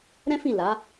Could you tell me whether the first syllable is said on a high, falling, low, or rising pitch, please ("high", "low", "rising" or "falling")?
high